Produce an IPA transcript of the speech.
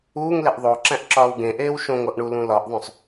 uː ŋ l e ʔ ðˤ o ǁ æ̃ ʔ ǁ ɒː w ɡ ẽ ʔ eː w ʃ õ ŋ o ʔ ɳ u l ũ l ɒ ʔ ðˤ õ sˤ

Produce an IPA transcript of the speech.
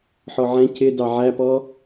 ħ ɔ ʕ ɛ̃ c ɪ d ɑ ʕ æ p ɔ

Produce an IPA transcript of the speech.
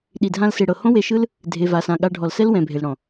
ɗ i˨ dʱ ã˧ l s e˨ ɽ ɤ˨ h õ˦ w e˧ ʃ ɯ˦ l | dʱ e˨ v a˨ s ã˨ ɠ a˧ ɖʱ ɔ˨ l s ɛ˦ l w ɛ̃˨ bʱ e˨ l ɽ ɔ̃˨

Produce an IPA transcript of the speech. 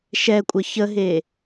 ʃ ɛ kʷʼ ə ç ə ɦ e

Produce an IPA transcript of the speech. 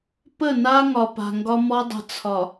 p ə˦˨ n a˦ ŋ ɒ˨ p a̤˨ ŋ ɡ ɒ˦ m ɔ˦ dˤ ə̤˨ t͡sʰ ɒ˨

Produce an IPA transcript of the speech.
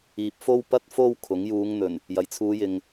iː˨ p̚ f o˧ w p ɐ˧ t̚ f o˧ w kʰ ʊ˨˥ ŋ j uː˨˧ ŋ n̪ ɵ˨˩ n | j ɐ˨˩ j t͡sʰ uː˨˧ j ɪ˨ ŋ

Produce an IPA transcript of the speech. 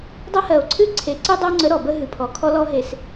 dˤ ɐ˦ h ɜ˨ o̯ ǀʰ ɨ˦ ǀʰ e˨ ǀ ɨ˦ dˤ ɐ˦ o̯ ŋ͡ǀ ə˨˦ ɾ ɔ˨ b ə˦ ɦ ɨ˨ pʰ ɔ˨ kʰ ɔ˦ l ɔ˦ ɦ e˨ s

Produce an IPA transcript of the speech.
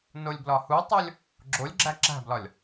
n o lʲ b l ɒ h u tˤ o lʲ | ɡ͡ǁ o lʲ ɡ͡ǁ æ ǁ æ̤ b l ɒ lʲ

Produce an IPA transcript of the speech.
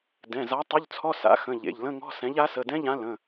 d ɛ̃˩˧˩ z a˨˥ tˤ ʏ˧˥˧ ʎ t͡sʰ ɔ˧˥˧ s a̰˨˥ x ə̃˩˧˩ ʎ ḛ˩˧˩ ʎ l ə̃˧˥˧ ŋ ɔ̤˧˥˧ s ɛ̃˨˥ ʎ a˨˥ s ə˩˧˩ d ɛ̃˧˥˧ ʎ ã˨˥ l ə̃˩˧˩

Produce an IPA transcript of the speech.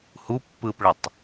h u pː ɯː p ɭ ɐ tˤ

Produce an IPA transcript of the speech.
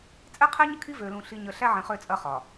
t͡sʼ ɛ˦ qʰ e˦ ɲ ə˦ kʰ i˦ v ø˨ l ũ˨ ɬ i˨ ɲ ə˨ ɬ æ˦ ʕ ẽ˨ χ ø˦˨ t͡sʼ ɐ˦ χ ɒ˨

